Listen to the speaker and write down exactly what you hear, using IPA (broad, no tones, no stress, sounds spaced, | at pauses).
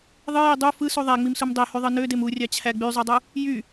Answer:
ðˤ ɯ j i dˤ u f ɯ s u ðˤ æ ŋ͡m i m s u m dˤ e h y ðˤ ɯ n ø d e m u rʲ ɑ t͡ɕʰ æ ɡ͡b y zˤ u dˤ u | j y